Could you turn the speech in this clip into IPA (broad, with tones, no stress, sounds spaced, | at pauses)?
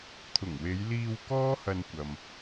t̪ʰ ʊ˨˩ ŋ w e˨˧ j l iː˧ w k ɔː˥ h ɐ˧ n kʷ ɐ˨ m